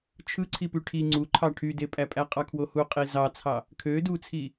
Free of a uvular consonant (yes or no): no